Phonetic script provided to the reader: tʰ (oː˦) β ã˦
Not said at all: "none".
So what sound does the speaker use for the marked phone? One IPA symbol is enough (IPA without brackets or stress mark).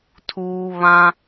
uː˦